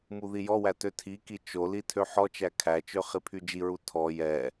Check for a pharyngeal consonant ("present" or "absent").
present